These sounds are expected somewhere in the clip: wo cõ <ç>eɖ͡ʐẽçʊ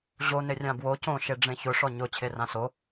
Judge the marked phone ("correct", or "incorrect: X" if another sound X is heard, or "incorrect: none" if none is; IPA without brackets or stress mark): incorrect: ʃ